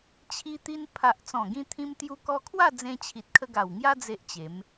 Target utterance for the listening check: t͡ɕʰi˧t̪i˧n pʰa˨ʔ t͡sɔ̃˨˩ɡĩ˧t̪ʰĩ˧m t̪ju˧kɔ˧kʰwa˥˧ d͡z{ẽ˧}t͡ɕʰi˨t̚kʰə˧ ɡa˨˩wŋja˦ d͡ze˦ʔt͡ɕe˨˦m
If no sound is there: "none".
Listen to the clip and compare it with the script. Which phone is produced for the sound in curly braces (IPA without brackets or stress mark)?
ẽ˧